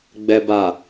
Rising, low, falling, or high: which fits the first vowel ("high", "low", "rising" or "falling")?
low